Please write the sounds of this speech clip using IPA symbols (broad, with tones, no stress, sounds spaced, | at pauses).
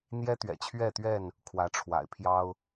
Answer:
n̪ j ɛ˦ t̪ ɥ ɛ̰˨˩ t͡ɕʰ ɥ ɛ˥˨ t̪ ɥ ɛ˥˨ n | kʰ w ä˨˦ ʈ͡ʂʰ w a̰˨˩ ɪ̯ pʰ j ɑ˦ ʊ̯